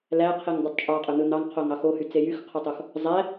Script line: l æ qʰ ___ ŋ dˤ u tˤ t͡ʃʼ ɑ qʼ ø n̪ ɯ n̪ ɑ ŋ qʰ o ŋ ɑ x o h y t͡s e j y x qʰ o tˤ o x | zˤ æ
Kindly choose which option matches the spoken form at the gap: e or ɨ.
e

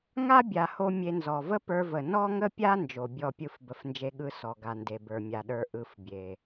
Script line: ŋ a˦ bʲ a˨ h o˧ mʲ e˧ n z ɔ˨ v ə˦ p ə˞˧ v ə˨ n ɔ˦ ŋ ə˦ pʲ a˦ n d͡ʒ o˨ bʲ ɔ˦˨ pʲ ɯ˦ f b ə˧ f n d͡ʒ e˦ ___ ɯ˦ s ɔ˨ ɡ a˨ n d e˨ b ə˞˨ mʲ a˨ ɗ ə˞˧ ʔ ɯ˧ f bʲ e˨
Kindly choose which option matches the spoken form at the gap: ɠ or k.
ɠ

